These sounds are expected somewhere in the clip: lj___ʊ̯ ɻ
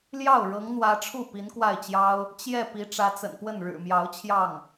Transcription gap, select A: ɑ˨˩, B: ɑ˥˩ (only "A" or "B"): B